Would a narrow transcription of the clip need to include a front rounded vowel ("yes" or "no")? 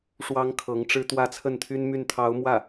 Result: yes